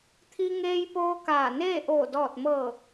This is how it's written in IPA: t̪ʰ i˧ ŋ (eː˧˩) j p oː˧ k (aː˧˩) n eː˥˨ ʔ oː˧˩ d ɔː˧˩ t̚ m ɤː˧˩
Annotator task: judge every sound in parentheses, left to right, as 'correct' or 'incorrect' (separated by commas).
incorrect, correct